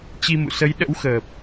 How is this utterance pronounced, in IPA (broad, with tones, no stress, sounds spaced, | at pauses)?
t͡ɕ i˧ m ṵ˧˨ s ə˨˦ j ɗ ə̰˧˥ w x əː˨˩ p̚